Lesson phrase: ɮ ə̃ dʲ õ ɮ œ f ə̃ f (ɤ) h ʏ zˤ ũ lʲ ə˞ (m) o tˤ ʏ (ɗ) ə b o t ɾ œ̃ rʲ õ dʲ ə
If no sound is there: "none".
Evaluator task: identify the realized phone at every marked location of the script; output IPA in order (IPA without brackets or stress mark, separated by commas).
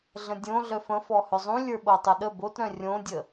ɔ, ɓ, ɗ